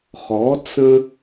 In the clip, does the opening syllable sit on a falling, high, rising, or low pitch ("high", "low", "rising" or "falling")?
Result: rising